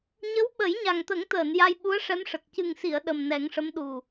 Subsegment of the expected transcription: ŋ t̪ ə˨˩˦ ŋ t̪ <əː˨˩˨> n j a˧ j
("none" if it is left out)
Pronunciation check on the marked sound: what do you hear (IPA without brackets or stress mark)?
əː˨˩˨